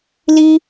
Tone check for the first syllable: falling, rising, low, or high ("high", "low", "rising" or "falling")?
high